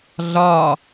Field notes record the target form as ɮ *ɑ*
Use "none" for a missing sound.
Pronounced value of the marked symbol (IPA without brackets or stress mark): ɒ